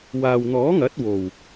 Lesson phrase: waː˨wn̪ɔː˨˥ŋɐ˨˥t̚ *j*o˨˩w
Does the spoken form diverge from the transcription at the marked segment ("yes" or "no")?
yes